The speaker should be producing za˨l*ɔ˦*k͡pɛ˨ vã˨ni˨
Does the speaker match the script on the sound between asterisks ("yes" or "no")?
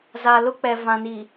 no